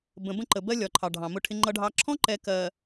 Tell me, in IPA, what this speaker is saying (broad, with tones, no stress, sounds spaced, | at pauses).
b ə̃˨ b ə̃˦˨ ǃ ə˨ b ɜ˦ lʲ ɒ˨ ǃʰ ɑ˨ ɖʱ ɑ̃˨ m ʊ˦ ʈʰ ɪ˦ ŋ͡ǃ ʌ˦ ɖʱ ɑ˦ ǁʰ ɔ̃˦ ǃ ɛ˨ k ɜ˨